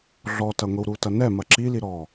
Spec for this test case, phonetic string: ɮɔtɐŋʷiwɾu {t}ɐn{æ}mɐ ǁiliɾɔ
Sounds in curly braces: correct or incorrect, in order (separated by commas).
correct, incorrect